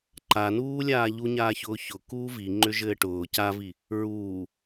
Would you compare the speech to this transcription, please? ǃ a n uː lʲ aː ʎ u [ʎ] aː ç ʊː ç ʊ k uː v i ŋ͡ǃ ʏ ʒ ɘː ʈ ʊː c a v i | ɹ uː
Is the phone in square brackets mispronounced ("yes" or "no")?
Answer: yes